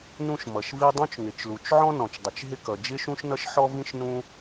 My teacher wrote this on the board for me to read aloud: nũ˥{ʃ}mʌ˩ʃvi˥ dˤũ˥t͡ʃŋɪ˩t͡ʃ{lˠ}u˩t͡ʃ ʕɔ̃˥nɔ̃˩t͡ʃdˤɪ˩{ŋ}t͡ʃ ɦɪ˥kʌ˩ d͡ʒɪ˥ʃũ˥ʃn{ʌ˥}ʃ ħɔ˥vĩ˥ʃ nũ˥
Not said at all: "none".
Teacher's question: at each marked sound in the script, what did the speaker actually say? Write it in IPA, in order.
ʃ, l, none, ʌ˥

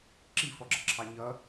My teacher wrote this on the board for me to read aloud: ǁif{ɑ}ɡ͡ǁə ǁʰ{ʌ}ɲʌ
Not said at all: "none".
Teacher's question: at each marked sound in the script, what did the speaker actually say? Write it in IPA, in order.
ɔ, ɑ

